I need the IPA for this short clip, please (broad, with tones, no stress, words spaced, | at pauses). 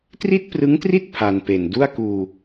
tri˥˩t̚prɯ˦˥ŋtri˥˩t̚ pʰa˧npe˨˩n du˥˩a̯kuː˧